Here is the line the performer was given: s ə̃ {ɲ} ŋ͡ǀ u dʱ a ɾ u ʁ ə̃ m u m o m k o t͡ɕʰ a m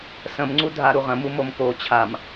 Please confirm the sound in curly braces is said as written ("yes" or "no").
no